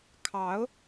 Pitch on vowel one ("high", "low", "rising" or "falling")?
rising